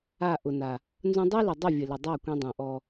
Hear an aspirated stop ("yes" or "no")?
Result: no